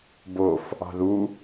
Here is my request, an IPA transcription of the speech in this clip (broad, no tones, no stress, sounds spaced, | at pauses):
b o f | ɑ̤ ð u